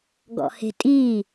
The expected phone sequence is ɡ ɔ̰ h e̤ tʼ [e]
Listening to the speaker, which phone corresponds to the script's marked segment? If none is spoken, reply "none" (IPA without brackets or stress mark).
i